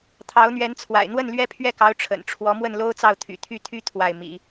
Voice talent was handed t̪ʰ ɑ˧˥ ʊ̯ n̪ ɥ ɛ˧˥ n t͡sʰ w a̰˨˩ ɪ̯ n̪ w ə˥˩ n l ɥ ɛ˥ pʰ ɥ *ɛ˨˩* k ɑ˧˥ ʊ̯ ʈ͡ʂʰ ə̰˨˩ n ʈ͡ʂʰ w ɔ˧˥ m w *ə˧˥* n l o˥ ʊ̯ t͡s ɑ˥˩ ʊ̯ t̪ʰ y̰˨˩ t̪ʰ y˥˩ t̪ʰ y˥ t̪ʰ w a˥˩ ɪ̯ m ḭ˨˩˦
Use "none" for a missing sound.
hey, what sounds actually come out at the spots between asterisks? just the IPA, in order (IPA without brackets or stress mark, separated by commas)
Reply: ɛ˥˩, ə˥˩